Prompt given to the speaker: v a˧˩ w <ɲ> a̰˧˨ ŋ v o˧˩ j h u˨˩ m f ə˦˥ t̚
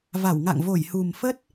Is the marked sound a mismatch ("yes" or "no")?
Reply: yes